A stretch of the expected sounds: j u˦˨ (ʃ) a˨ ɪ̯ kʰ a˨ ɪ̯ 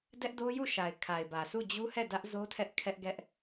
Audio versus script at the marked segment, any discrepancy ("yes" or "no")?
no